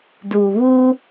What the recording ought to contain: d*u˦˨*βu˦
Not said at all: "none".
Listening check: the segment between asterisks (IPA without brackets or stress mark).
u˨